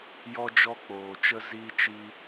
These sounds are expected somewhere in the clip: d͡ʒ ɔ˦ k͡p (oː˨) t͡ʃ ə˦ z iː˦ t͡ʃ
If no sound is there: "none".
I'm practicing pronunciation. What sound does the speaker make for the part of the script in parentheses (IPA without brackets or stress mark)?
oː˨